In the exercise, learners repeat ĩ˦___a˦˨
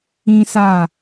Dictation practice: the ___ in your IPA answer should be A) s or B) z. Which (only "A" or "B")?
A